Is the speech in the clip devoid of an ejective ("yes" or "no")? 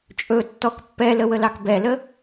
no